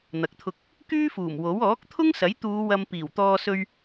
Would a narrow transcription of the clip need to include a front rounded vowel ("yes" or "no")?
yes